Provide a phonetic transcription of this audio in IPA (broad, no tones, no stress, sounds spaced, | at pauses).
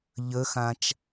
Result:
ʎ ə x ã t͡ʃ